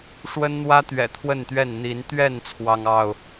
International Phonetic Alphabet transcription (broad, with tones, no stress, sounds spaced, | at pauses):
ʂ w ə˦ n n̪ w ä˦ t̪ ɥ ɛ̰˨˩ t̪ʰ w ə˥˨ n t̪ ɥ ɛ˥˨ n n̪ i˨˦ n t̪ ɥ ɛ˥˨ n t͡sʰ w ɑ˦ ŋ ɑ˥˨ ʊ̯